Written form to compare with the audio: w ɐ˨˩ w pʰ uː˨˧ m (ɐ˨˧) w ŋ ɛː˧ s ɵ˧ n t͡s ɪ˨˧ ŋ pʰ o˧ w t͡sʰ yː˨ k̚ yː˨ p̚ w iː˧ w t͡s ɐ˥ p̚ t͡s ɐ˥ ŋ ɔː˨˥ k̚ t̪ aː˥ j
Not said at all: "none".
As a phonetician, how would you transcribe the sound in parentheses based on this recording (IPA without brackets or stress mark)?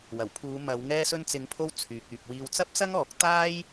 ɐ˨˧